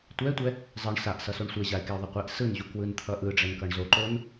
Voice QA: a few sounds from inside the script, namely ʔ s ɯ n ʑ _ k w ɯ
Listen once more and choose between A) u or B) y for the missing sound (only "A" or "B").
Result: A